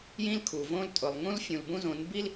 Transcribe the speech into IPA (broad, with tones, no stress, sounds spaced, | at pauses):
j ĩ˦ l kʰ u˨ v õ˦ l tʼ ʊ˨ lˠ ŋ ũ˦ l fʲ ũ˨ l b ũ˦ z õ˨˦ n b i˦ l